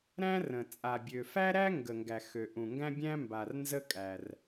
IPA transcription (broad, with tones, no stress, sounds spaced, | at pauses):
ɾ æ̃˥ r ə̃˩ t͡sʼ a˩ bʲ ø˩ f æ˥ ɾ æ˥ ŋ ɡ ə˩ ŋ ɡ æ˩ x ø˩ ʔ ũ˩ ŋ ɡ æ̃˥ bʲ æ̃˥ m b a˩ r n z ə˥ kʼ æ˩ r